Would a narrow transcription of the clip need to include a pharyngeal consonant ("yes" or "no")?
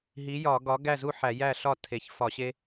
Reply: yes